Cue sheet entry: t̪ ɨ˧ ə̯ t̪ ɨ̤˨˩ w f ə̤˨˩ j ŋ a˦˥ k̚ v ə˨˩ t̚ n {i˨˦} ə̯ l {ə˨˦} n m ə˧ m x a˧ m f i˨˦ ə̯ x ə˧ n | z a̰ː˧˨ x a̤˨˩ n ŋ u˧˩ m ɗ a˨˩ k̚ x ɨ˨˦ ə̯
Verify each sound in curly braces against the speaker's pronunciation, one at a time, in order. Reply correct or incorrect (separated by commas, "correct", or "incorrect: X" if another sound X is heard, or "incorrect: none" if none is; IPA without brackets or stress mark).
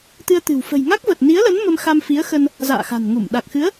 correct, correct